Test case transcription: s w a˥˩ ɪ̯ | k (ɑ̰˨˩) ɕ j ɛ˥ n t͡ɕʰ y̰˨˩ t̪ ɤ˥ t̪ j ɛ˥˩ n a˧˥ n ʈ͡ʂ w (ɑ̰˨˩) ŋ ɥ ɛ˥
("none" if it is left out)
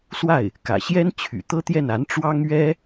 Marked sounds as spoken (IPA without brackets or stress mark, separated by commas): ä̰˨˩, ɑ˥